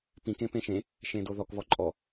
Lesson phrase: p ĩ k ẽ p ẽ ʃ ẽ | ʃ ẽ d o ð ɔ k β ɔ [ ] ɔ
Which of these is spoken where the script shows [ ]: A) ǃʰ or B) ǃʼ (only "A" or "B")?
B